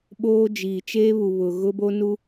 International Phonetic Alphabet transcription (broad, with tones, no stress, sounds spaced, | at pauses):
ɓ oː˦ d͡ʒ iː˨ t͡ʃ eː˦ β u˨ β ʊ˨ ɣ ʊ˦ b o˦ n u˦